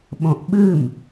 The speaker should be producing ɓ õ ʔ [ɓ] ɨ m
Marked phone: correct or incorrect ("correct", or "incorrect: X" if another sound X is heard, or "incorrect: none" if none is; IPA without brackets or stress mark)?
correct